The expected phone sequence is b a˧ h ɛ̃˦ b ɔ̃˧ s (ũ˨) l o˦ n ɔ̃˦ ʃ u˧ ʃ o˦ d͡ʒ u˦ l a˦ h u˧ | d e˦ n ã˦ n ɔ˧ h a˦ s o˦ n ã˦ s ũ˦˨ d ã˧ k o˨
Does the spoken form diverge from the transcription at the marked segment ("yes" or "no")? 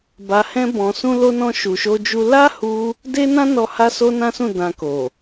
yes